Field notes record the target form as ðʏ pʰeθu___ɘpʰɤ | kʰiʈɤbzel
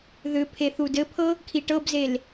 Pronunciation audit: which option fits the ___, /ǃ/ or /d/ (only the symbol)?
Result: d